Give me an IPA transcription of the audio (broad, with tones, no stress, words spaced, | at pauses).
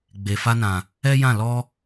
ɡ͡be˨ fa˧nã˨ | ɛ˦jã˦˨ lɔ˧